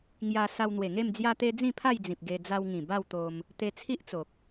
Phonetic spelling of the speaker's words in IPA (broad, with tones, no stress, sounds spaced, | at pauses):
ŋ j a˧ s a˧ w n̪ w e˨˩ ŋ e˥˧ m d͡z j a˧ t̪ e˧ d͡z ĩ˥˧ pʰ a˥˧ j d͡z ĩ˨ p̚ ɡ e˧ d͡z a˧ w ŋ ĩ˨˩ b a˥˧ w t̪ o˧ m | t̪ e˧ t͡sʰ i˦ ʔ t͡s o˨ k̚